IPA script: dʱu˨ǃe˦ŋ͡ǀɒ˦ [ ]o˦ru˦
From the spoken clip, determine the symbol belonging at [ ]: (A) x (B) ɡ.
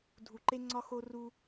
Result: A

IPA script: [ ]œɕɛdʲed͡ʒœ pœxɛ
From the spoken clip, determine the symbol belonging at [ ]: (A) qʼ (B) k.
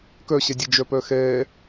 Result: B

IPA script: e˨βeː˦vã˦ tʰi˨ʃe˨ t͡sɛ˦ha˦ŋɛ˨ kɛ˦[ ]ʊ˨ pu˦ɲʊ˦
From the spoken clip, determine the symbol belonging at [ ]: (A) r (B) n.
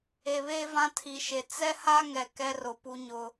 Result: A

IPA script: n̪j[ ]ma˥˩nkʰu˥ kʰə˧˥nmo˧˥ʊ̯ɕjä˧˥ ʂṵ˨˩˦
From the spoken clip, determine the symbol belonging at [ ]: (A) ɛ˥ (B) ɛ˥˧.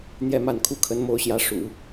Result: B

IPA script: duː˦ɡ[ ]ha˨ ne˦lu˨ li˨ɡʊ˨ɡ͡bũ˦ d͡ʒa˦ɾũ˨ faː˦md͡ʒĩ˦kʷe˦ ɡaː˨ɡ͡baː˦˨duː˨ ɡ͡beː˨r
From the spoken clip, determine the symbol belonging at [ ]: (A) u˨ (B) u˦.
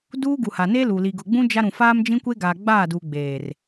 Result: A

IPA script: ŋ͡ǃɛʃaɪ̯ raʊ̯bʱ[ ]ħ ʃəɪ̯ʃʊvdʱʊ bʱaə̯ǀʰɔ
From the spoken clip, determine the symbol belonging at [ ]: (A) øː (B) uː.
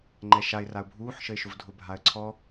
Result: B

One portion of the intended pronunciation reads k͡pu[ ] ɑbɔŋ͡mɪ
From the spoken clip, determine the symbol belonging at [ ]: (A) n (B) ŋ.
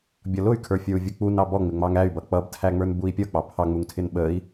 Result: A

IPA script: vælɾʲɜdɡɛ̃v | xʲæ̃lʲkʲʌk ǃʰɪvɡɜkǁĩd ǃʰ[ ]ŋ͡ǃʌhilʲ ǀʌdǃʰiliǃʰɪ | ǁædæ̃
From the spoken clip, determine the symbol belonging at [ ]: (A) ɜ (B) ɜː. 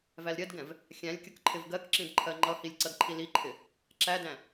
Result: A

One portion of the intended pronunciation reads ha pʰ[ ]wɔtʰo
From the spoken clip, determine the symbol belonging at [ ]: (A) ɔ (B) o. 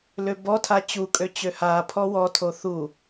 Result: A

